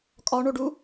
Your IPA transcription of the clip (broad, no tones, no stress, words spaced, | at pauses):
kʼɒɳoɖu